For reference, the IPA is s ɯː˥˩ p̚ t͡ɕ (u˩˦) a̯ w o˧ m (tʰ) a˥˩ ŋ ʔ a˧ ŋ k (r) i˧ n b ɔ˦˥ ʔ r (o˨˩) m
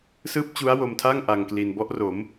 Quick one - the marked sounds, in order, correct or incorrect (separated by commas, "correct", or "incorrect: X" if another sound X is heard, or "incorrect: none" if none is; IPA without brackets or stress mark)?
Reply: incorrect: u˦˥, correct, incorrect: l, incorrect: o˩˦